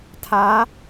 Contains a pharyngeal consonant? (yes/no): no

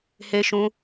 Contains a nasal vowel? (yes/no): yes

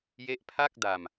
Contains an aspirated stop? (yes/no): yes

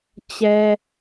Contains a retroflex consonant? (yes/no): no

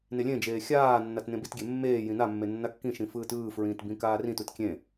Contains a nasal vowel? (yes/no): yes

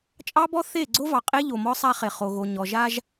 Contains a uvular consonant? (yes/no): yes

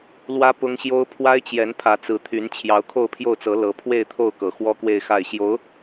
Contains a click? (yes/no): no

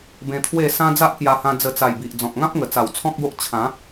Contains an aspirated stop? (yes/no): yes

